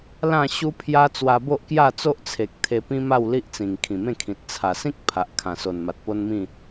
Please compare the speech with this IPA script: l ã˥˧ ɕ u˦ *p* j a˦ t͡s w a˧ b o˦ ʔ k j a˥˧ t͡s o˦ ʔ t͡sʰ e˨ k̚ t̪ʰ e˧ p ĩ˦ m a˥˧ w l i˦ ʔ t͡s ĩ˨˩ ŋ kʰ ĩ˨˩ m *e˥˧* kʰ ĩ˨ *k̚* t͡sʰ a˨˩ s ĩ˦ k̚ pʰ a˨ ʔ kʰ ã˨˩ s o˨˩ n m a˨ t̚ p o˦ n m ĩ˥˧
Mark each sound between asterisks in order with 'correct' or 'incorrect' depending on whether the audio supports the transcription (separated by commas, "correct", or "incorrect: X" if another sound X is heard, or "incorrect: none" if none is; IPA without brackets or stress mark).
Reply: incorrect: pʰ, incorrect: ẽ˥˧, incorrect: t̚